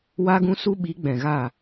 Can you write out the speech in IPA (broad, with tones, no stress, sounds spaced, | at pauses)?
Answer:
w a˦ ɡ ũ˦ s u˦ ɓ i˨˦ ɡ͡b ɛ̃˨ ɣ aː˦˨